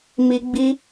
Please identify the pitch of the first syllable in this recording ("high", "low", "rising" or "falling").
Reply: high